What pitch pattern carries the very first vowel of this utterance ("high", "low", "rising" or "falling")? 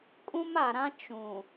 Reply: high